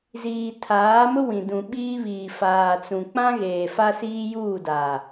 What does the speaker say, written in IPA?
z iː˨ tʰ aː˨˦ m ʊ˦ w ĩ˨ d ũ˨ ɓ iː˦ β iː˨ f aː˨ t͡s ũ˨ k͡p ã˦ ɣ eː˨ f a˦ s iː˦ j uː˦˨ d a˨

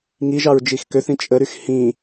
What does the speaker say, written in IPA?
ŋ i ʒ ɑ ɹ d͡ʒ i x k ø θ ĩ t͡ʃʼ ə ɾ y x h ĩ

